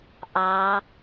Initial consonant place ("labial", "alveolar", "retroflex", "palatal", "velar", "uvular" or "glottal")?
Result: glottal